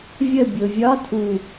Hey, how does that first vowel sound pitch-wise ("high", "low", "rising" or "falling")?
falling